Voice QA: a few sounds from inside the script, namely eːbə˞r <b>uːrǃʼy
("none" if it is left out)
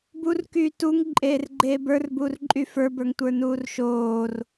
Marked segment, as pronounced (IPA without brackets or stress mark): b